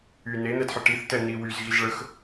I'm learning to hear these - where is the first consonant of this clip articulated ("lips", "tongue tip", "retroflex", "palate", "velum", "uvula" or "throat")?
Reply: tongue tip